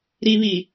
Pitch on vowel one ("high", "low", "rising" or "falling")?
low